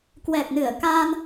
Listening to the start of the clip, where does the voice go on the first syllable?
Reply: low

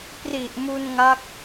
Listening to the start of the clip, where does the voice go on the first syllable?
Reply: low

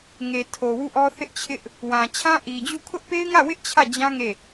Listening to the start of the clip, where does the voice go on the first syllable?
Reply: low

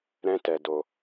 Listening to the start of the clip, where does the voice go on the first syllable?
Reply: high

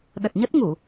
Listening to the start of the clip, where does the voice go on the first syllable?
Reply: low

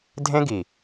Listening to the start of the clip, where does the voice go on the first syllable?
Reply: high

